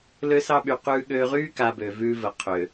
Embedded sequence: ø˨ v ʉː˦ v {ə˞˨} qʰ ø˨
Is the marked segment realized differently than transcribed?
yes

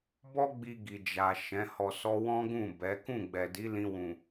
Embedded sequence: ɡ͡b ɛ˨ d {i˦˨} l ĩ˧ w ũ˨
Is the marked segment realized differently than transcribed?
yes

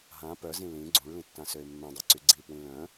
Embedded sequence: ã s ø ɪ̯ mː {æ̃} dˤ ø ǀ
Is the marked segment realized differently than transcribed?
yes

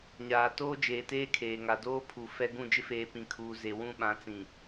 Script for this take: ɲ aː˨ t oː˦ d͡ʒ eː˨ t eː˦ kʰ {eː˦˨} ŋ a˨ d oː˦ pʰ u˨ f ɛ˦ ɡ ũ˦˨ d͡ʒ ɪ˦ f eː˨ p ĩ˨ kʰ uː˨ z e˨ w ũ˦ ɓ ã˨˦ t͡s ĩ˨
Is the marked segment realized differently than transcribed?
yes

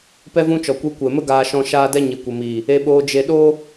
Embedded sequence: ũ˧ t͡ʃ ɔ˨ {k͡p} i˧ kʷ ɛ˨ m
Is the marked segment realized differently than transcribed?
yes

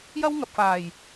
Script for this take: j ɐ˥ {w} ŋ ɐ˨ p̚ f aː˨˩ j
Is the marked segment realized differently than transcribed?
no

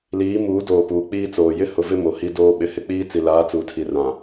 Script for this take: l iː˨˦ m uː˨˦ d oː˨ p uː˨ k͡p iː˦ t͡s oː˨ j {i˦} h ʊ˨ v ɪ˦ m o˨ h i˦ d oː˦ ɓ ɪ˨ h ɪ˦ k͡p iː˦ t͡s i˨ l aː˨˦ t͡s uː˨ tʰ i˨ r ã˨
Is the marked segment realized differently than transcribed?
yes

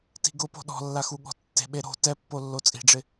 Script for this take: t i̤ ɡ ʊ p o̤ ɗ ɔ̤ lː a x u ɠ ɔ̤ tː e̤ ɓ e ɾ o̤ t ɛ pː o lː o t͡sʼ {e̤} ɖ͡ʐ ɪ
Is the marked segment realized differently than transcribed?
yes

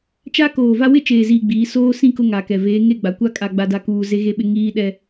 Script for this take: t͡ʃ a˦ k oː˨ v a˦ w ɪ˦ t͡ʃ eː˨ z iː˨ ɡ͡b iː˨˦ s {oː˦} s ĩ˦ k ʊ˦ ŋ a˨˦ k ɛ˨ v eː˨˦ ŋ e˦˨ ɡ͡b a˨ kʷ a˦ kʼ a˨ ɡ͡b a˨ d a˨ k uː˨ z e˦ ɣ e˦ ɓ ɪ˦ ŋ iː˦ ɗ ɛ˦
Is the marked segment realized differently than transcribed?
no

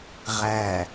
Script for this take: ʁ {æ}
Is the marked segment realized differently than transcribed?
no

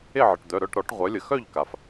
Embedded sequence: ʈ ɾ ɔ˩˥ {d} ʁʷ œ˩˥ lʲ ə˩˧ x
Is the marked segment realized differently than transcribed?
yes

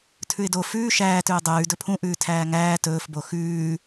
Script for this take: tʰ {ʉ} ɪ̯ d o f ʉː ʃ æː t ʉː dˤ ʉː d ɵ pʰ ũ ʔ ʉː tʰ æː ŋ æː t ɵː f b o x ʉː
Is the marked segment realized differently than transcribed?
no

